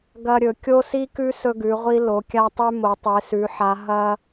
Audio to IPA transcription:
ɡ ɐ˧ ɾʲ ɵ˩˧ kʲ o˧ s i˧ k ʉ˧ s ɵ˧ ɡ ʉ˩˧ ʁʷ i˧ l o˩˧ kʲ a˧ tˤ ʉ˧ m o˩˧ tˤ e˩˧ s ʉ˩˧ ħ a˩˧ ɦ ɐ˧

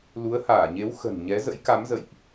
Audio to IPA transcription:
l u˨˦ ə̯ h aː˧˩ ɲ e˨˦ w x ə̤˨˩ n ɲ ɛ˨˦ z ə̰˧˥ j k a˨˦ m z ə̰˧˨ j ʔ

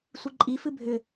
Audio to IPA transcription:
sʷ i ǃʼ i f ɨ bʱ ʏ

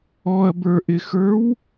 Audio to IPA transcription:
ɔ ɐ̯ b ə˞ ʔ ɪ x ə˞ w

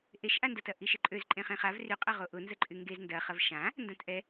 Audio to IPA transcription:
ʔ e ʃ ʔ a n d ɐ t ɐ ʔ i ʃ ɪ ǃʼ ø z ǃʼ ẽ χ ẽ χ a v r y qʼ ɐ ʁ o ʔ ʊ n z ə ǃʼ y ŋ ɡ e z n d ɐ χ ɐ v ʃ ã | n d ã t ʔ ɛ

